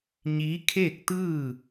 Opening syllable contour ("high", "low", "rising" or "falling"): rising